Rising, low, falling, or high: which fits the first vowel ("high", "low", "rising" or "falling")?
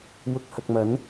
low